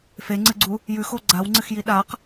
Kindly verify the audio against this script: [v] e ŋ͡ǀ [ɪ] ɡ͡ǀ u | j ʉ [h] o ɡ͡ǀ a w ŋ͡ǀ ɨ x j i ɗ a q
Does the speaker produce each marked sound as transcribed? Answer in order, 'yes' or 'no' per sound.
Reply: no, no, no

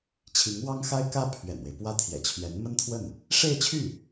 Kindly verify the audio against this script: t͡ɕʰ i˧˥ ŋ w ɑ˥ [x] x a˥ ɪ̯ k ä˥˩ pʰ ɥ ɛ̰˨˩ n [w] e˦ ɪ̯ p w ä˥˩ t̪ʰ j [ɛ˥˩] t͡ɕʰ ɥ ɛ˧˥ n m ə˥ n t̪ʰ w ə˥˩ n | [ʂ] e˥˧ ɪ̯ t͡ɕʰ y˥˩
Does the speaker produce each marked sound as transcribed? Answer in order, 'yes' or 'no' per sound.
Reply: no, yes, no, yes

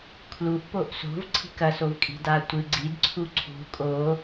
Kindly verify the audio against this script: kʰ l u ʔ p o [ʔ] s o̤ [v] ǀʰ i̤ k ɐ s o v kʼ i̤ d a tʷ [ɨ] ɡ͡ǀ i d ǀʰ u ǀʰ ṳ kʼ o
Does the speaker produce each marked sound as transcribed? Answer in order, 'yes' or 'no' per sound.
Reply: yes, yes, yes

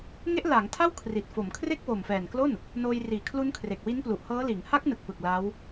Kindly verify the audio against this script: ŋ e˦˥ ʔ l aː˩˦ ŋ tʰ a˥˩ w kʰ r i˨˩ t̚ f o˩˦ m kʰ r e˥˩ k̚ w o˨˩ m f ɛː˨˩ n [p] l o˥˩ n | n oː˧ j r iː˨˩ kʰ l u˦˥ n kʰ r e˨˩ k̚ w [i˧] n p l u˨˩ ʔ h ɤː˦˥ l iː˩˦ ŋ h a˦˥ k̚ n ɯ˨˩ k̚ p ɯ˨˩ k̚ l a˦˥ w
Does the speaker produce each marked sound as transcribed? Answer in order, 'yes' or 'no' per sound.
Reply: no, no

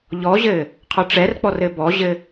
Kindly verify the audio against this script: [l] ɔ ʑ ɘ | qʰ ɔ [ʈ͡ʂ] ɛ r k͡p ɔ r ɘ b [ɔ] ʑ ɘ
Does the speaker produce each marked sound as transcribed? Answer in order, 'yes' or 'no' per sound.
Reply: no, yes, yes

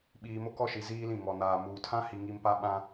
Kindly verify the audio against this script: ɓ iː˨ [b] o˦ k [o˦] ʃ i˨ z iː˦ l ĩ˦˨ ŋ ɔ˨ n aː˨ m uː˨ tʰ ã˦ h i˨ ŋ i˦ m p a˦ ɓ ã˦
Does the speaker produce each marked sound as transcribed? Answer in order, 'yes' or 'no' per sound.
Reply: no, no

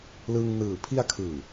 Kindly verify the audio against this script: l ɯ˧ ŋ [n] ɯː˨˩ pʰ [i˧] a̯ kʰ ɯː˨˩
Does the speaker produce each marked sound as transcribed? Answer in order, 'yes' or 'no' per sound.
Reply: yes, yes

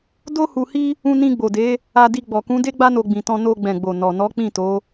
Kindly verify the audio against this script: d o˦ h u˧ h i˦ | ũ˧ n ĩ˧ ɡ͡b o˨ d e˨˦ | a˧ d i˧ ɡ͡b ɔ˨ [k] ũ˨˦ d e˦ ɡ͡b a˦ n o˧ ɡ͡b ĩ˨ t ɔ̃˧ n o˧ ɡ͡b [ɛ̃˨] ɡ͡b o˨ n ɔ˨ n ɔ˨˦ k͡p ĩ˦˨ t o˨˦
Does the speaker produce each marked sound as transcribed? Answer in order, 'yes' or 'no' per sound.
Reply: yes, yes

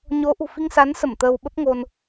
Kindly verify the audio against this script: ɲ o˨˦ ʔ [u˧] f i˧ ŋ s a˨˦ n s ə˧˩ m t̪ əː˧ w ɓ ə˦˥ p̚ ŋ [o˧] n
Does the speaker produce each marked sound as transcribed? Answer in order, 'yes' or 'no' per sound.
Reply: no, yes

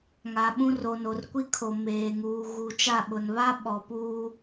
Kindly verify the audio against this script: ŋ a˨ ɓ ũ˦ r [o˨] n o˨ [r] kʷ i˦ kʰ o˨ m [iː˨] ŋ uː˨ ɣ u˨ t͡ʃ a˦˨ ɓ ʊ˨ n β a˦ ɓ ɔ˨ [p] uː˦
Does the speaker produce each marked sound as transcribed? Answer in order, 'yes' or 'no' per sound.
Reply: yes, yes, no, yes

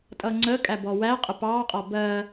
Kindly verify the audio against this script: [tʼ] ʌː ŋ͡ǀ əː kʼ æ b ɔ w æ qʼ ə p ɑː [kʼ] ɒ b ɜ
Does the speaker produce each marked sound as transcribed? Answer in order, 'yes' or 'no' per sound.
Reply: yes, no

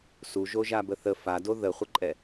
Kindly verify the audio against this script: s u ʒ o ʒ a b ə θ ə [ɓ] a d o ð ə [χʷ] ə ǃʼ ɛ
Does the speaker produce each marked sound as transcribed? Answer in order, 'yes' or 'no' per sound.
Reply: no, yes

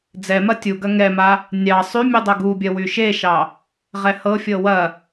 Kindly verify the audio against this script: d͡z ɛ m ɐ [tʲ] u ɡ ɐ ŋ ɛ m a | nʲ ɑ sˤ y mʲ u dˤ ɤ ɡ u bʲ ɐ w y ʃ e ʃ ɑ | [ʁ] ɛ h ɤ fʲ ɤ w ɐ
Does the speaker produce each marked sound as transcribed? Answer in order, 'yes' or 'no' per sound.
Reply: yes, yes

